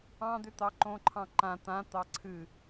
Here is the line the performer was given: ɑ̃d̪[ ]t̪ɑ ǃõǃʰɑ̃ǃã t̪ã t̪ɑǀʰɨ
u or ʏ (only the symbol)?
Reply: ʏ